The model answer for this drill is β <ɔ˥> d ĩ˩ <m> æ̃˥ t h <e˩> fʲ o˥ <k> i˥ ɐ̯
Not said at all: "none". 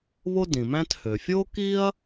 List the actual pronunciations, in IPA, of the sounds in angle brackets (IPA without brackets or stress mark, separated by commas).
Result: o˥, m, ø˩, k